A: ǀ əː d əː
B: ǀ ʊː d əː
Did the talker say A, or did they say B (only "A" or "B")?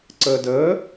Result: A